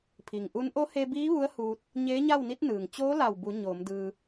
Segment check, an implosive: absent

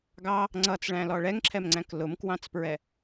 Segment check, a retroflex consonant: present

